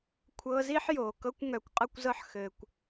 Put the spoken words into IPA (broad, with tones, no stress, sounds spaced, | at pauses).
kʷʰ ɤː˧ z iː˦ ħ j oː˨ k ɤ˦ kʷ ŋ œ˨˦ kʷ qʼ ɤ˦ kʷ z ɤ˦ ħ x ɘː˧ kʷ